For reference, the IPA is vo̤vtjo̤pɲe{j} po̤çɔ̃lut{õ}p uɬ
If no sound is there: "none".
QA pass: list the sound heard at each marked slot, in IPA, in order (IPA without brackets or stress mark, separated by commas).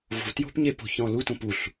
none, õ